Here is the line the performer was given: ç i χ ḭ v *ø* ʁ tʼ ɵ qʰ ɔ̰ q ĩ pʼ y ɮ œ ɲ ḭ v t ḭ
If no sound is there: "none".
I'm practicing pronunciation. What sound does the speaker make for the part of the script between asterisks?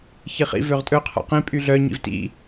ø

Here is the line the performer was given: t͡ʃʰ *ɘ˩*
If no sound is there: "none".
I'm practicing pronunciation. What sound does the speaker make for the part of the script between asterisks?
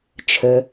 ɘ˩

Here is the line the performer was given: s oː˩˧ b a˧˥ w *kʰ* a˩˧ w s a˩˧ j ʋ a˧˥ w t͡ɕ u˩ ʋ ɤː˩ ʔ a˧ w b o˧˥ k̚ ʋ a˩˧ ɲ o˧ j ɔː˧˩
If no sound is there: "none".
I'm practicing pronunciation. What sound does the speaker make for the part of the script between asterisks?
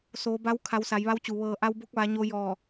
kʰ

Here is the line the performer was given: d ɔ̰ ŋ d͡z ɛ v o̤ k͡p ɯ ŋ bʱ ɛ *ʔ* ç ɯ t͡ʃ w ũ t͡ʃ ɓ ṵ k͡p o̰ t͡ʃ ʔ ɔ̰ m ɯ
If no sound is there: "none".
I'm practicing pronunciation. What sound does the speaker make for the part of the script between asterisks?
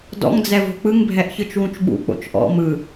ʔ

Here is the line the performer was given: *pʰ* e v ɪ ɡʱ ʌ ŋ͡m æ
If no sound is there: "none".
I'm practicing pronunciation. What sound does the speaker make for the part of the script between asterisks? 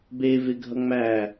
b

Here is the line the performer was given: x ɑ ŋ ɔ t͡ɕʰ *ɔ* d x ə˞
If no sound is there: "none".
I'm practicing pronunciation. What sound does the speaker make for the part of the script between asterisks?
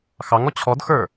ɔ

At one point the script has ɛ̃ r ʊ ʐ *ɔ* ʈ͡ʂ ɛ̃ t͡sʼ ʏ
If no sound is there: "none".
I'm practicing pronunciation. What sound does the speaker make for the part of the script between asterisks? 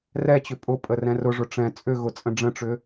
ʊ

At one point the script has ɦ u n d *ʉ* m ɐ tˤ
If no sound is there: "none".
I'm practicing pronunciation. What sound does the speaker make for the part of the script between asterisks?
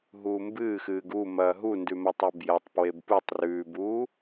ʉ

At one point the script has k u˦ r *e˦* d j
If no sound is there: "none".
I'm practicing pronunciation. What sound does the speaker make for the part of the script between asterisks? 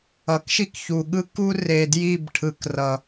e˨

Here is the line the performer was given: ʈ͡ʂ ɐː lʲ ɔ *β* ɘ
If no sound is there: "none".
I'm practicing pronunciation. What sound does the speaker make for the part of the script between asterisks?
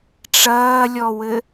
w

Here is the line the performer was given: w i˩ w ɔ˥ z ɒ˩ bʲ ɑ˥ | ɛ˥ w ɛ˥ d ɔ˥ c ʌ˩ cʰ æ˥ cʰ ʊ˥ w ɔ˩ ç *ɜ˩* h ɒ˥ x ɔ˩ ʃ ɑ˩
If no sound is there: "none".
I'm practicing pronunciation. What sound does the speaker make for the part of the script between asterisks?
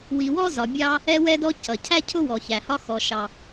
æ˩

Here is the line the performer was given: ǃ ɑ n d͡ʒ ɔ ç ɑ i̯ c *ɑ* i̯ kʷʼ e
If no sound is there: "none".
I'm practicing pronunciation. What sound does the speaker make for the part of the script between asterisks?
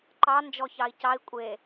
ɑ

